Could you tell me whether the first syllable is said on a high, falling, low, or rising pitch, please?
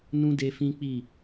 high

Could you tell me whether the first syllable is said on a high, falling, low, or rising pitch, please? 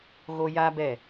high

